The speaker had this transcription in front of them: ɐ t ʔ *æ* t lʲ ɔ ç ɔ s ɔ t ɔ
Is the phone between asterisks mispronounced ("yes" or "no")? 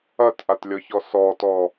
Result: yes